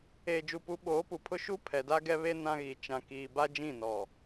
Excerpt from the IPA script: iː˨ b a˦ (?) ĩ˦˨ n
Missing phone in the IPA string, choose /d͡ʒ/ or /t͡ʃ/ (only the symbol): d͡ʒ